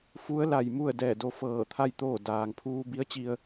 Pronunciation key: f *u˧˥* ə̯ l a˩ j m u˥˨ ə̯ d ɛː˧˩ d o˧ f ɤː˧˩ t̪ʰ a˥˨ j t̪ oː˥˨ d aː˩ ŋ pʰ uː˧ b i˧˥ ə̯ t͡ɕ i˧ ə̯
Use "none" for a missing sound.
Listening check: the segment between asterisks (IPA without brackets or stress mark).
u˧˥